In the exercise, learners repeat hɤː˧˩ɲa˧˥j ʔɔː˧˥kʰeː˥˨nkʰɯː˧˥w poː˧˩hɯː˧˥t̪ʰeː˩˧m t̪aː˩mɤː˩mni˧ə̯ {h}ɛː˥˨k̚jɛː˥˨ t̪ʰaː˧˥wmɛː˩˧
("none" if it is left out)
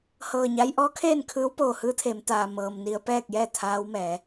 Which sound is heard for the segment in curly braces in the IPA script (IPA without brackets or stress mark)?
p